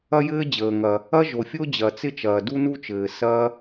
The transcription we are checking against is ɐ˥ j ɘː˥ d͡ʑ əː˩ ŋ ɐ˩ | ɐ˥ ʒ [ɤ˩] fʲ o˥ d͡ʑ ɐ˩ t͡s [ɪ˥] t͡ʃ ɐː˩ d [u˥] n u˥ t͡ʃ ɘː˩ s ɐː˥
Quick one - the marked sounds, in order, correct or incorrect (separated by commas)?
incorrect, correct, correct